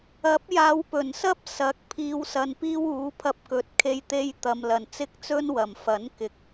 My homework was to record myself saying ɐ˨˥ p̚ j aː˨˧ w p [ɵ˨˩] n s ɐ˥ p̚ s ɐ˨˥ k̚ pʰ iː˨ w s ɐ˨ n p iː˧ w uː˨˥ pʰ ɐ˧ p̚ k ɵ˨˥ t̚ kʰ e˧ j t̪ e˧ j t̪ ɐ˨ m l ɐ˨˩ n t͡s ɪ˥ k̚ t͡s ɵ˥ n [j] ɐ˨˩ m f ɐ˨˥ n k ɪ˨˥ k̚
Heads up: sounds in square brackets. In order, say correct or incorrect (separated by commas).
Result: correct, incorrect